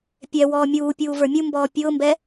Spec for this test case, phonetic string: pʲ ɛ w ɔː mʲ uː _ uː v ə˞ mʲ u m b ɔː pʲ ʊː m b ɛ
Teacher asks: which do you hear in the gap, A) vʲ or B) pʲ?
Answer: B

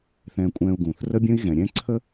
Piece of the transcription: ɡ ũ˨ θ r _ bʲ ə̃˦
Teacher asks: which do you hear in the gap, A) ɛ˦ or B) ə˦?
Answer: B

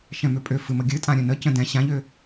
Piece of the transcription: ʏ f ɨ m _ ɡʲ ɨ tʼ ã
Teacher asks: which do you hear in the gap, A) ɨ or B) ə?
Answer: B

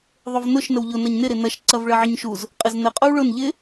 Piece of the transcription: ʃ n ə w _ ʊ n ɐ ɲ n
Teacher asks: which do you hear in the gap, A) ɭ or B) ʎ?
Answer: B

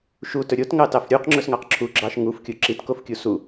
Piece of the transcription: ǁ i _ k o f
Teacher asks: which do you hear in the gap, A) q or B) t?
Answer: B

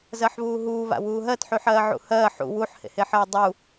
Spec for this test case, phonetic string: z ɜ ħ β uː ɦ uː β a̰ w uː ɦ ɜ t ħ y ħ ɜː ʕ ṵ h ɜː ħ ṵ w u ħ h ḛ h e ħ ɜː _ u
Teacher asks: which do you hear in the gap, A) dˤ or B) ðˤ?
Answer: A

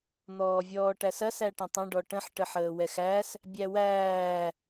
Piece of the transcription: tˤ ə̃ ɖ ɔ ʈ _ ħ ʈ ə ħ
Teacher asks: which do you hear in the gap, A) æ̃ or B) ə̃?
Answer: B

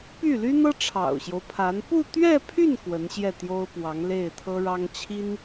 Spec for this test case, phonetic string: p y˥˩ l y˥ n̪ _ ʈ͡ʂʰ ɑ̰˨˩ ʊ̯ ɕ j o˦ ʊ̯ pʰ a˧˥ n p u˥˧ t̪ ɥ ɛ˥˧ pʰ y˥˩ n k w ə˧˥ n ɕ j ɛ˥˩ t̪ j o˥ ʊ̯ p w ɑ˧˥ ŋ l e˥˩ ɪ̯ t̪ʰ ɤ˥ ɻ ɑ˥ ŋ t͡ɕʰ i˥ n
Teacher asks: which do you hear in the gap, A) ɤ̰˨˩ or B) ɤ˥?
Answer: B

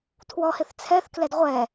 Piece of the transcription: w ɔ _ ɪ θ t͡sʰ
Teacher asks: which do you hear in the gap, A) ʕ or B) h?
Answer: B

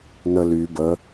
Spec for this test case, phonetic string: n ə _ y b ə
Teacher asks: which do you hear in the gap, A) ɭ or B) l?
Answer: B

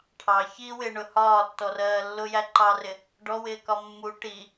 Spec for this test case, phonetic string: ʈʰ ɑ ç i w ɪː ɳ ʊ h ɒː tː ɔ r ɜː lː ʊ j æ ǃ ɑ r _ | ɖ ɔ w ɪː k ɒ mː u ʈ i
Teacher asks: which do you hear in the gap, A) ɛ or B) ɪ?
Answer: B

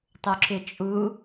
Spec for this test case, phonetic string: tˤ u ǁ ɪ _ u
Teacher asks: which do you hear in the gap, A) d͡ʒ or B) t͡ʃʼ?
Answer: B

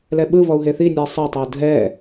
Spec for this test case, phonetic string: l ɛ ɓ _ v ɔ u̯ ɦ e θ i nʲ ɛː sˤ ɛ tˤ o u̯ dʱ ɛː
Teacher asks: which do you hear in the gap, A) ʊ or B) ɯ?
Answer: B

